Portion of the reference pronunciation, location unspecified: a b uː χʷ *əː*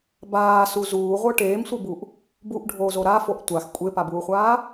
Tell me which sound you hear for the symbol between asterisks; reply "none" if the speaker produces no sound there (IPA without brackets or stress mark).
aː